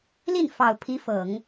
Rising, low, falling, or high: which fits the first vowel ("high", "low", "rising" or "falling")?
falling